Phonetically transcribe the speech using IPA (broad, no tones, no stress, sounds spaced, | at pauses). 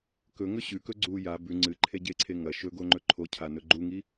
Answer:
k ɵ ŋ ɵ ɕ ʉ k ɵ ɡ͡ǀ u j a b ʉ ŋ͡ǀ ɨ ǃʰ e ɟ e ǀʰ e ŋ ɐ ʃ ɵ ɡ o ŋ͡ǃ ɵ ǃʰ o cʰ a n ɵ ɡ͡ǃ u ŋ i